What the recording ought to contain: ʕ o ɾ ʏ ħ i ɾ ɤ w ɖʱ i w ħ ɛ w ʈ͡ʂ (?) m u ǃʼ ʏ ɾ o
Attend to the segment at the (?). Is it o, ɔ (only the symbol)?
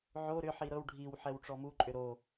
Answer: ɔ